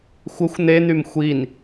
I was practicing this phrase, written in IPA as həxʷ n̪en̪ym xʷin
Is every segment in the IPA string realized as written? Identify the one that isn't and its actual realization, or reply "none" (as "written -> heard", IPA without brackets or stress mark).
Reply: h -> xʷ